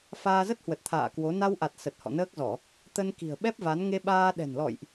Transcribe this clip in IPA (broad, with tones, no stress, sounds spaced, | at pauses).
f aː˧ z ə˦˥ t̚ h w ə˨˩ t̚ t̪ʰ a̰ː˧˨ k w o˨˦ n a˧ w ʔ a˨˩ t̚ s ə˨˩ t̚ h ɔ̰˧˨ n əː˦˥ k̚ z ɔ˧˩˨ | t̪ ə˧ n k i̤˨˩ ə̯ ɓ ɛ˦˥ p̚ v a˨˦ n ŋ e˧ ɓ aː˧ ɗ ɛ̤˨˩ n l ɔ̰˧˨ j ʔ